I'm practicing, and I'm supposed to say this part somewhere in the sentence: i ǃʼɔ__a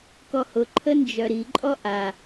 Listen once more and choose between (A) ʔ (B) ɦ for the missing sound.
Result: A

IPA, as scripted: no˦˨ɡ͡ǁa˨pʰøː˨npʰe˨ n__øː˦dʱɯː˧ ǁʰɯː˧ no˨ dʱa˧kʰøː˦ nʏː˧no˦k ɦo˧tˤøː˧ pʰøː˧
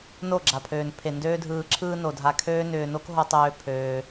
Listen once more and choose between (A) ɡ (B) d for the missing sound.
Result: B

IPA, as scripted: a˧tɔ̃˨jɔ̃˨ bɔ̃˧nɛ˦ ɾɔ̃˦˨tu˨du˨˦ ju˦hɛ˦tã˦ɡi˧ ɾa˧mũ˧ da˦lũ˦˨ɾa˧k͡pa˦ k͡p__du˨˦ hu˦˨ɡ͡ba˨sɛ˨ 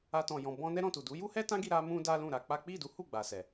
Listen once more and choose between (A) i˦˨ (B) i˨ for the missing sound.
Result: A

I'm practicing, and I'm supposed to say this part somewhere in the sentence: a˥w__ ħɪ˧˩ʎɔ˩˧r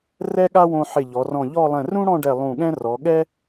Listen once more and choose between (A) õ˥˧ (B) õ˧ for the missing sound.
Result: B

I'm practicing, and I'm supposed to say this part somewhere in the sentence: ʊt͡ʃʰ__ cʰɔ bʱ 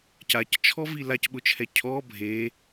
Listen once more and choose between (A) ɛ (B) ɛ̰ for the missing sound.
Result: A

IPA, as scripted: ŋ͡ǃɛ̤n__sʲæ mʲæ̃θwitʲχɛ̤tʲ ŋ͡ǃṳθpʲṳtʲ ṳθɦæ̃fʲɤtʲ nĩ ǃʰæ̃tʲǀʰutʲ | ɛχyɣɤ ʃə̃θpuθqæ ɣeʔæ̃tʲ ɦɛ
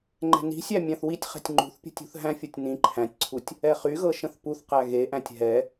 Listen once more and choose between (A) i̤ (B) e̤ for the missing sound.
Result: A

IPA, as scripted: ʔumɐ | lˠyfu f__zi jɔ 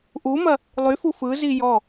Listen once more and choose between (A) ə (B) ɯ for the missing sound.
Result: B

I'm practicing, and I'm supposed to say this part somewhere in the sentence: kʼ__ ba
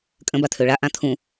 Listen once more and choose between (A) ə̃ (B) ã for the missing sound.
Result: A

